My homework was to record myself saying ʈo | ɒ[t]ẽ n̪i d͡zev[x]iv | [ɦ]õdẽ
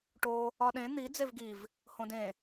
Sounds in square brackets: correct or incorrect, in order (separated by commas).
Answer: incorrect, incorrect, incorrect